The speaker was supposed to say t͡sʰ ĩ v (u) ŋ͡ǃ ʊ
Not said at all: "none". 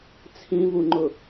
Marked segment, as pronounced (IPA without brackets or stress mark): u